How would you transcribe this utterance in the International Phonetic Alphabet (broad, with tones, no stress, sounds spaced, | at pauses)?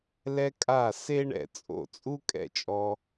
l ɛ˧ kʼ a˧˩ s e˥ ɳ ɛ̰˧˩ t͡sʼ o̰˧˩ t͡sʼ u˥ kʼ ɛ̰˧˩ t͡ʃʼ ɔ˧